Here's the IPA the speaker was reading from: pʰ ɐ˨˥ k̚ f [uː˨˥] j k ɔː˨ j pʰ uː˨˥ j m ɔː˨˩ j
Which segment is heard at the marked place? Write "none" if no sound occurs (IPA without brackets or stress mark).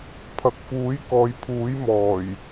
uː˨˥